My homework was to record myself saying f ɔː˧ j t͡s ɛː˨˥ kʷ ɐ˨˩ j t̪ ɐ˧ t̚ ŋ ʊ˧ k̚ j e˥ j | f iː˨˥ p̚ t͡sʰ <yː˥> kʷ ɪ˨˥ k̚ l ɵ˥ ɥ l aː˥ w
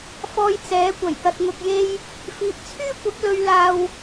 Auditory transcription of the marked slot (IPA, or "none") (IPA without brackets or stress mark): yː˥